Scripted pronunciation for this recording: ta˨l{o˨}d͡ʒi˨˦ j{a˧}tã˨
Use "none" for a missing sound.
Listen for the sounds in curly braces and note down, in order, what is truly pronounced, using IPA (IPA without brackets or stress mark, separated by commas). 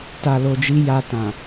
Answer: o˨, a˧